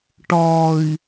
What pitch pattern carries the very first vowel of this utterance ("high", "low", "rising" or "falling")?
low